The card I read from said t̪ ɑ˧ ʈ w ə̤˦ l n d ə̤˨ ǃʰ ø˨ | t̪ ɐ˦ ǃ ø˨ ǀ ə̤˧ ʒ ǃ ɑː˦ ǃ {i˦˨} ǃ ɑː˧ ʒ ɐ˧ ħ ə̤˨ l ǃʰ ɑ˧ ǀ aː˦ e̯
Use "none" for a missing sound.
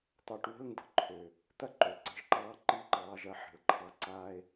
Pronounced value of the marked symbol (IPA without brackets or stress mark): i˦˨